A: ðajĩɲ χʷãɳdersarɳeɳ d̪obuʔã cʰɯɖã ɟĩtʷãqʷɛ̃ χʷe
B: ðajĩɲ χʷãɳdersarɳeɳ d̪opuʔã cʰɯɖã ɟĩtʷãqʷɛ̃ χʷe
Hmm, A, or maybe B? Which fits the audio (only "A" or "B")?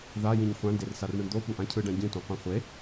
B